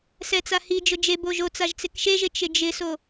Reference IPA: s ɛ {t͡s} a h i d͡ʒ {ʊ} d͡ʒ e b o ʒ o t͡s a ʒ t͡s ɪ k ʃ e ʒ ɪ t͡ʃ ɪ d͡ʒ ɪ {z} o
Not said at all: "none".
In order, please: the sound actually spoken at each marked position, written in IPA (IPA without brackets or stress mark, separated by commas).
t͡s, ʊ, s